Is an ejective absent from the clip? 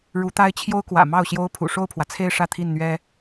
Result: yes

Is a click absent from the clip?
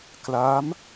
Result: yes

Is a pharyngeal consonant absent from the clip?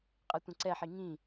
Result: no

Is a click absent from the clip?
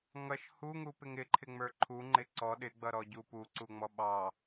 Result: no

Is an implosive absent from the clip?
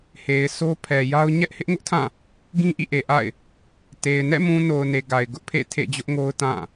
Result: yes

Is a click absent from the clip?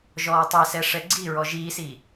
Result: no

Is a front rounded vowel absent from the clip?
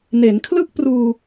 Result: yes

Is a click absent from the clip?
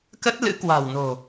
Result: yes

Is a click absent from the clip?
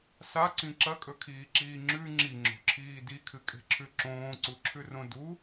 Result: no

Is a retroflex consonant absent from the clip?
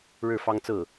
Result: no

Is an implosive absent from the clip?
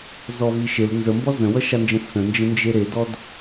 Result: yes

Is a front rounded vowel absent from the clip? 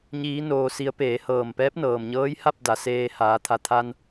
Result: yes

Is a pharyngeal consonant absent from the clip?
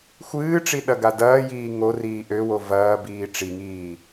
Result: yes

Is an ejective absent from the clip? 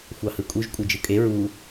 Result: no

